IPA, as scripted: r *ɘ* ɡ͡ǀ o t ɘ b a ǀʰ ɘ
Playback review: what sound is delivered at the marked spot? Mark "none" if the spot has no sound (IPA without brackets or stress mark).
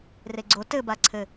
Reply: e